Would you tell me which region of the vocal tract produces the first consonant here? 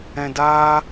tongue tip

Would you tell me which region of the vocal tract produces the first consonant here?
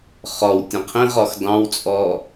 uvula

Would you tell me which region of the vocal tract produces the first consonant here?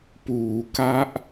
lips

